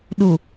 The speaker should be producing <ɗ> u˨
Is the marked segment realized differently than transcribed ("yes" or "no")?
no